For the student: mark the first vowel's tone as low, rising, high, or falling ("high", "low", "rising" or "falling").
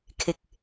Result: low